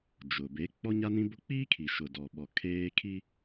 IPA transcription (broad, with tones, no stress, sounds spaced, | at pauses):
d͡ʒ ʊ˨ b e˨˦ k͡p ɔ˦ ɲ a˦ n ĩ˦ b ʊ˦ k͡p iː˦ kʰ i˨ ʃ ʊ˨ d ɔ˨ ɓ ɔ˨ kʰ eː˦ kʰ i˦